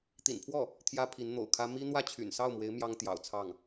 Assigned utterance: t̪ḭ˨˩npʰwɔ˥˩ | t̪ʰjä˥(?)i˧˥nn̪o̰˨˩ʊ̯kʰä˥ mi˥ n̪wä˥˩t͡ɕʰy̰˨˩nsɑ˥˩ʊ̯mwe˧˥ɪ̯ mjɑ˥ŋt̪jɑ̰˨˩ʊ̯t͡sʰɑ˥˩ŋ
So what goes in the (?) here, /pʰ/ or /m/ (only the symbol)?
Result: pʰ